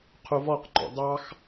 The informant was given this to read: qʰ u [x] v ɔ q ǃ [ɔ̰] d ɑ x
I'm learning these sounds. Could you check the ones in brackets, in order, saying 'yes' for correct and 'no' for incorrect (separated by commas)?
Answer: no, yes